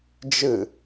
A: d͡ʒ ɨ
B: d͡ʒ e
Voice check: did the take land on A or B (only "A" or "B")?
A